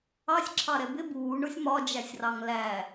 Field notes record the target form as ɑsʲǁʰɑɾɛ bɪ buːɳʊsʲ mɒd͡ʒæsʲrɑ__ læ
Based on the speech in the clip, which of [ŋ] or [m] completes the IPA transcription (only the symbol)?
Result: ŋ